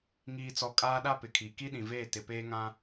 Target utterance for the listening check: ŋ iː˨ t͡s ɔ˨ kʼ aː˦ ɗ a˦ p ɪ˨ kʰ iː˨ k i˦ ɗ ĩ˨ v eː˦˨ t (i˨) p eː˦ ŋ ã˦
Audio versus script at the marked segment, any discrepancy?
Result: yes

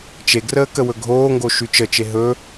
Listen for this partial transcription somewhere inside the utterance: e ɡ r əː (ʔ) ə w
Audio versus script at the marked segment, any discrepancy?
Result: yes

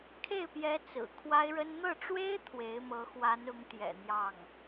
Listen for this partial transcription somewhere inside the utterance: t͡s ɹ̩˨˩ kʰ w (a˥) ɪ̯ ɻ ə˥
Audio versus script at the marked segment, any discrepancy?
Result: no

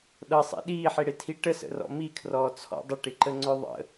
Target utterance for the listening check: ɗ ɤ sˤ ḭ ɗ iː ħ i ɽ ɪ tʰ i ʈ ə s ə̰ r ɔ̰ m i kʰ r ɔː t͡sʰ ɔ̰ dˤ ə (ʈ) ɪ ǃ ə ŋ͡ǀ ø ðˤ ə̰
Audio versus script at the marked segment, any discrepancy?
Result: no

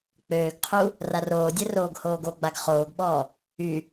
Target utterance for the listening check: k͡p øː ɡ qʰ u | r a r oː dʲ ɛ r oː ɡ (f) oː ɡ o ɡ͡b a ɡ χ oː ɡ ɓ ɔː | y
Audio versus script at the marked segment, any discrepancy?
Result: yes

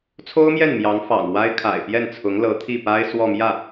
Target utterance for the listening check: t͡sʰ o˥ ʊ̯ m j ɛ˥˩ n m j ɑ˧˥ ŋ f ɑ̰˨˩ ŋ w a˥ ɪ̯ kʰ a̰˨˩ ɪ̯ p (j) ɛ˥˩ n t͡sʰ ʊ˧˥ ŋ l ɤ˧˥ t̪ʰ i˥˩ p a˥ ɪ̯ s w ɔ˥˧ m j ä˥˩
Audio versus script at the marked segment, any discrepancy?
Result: no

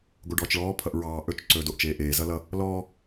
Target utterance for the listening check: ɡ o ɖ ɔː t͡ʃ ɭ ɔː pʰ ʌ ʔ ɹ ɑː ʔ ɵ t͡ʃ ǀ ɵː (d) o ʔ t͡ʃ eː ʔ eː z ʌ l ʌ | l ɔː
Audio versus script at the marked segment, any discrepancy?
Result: no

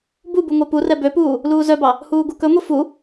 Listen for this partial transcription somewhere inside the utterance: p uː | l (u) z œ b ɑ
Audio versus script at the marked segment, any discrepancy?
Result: yes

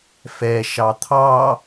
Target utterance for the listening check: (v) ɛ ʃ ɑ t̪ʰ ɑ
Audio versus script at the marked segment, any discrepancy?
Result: yes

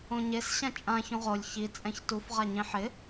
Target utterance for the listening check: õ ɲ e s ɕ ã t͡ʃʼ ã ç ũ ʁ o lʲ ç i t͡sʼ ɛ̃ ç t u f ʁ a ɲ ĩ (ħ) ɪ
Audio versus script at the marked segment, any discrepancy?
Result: no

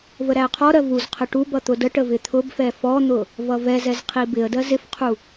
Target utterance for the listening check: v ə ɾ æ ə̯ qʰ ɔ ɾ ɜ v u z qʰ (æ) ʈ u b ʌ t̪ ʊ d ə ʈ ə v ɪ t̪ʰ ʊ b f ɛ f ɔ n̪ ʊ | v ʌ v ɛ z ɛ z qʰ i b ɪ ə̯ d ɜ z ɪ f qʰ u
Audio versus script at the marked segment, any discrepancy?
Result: yes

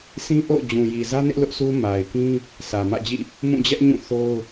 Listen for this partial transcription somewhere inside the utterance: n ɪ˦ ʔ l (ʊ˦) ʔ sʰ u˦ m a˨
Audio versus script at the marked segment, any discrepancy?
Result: no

